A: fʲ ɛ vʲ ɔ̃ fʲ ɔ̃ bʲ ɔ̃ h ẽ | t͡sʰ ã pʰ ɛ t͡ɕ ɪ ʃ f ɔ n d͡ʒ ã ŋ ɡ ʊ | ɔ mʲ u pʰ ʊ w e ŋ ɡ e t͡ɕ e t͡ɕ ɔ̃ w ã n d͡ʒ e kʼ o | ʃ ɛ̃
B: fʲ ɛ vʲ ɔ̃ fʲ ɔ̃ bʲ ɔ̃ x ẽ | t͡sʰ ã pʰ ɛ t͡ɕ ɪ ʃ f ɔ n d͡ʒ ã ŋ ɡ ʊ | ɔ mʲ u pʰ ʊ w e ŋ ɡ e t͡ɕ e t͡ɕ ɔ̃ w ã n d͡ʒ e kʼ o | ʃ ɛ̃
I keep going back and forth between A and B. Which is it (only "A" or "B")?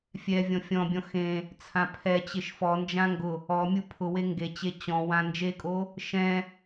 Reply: B